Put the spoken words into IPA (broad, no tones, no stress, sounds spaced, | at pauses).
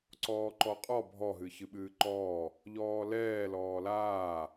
ǀ ɔː ǃ ɔ qʼ ɔ bʱ ɔ ɦ ɨ ç ɨ ɓ ɨː ǃ ɔː | ʎ ɔː l ɛː l ɔː l aː